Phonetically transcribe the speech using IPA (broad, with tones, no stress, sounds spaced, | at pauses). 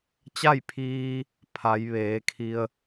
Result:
t͡ɕ a˥˨ j pʰ iː˧ | pʰ a˩˧ j ʋ eː˩˧ kʰ i˧ ə̯